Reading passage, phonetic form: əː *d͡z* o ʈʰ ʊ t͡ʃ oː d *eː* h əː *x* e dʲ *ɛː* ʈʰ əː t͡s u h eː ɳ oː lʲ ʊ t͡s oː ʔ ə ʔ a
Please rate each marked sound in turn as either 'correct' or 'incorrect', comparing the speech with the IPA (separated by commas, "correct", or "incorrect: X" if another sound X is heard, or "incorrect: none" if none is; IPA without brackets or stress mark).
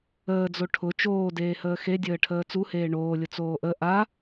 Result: correct, correct, correct, incorrect: əː